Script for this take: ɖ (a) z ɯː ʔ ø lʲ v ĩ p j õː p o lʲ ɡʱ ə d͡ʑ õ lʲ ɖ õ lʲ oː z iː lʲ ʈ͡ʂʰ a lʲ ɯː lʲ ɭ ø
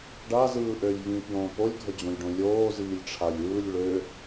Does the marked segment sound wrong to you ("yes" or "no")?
no